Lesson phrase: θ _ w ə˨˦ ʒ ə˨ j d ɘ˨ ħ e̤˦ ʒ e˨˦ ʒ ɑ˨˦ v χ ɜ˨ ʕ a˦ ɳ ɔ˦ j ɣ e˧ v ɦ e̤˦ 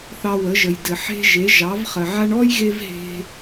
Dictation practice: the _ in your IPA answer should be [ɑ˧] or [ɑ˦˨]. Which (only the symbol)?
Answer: ɑ˧